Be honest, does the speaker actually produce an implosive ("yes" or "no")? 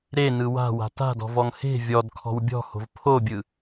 no